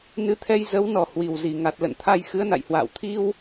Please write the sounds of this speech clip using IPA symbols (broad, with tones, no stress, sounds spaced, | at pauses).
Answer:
n ɨ˨˦ t̪ʰ ɛ˧ j z ə˨˦ w n ɔ˨˩ h w i˨˩ w z i˧˩ ŋ a˨˩ t̚ l ə̰˧˨ n t̪ʰ a˧ j x ɨ˨˦ ə̯ n a̰˧˨ j h w a̰ː˧˨ w t̪ʰ i˧ w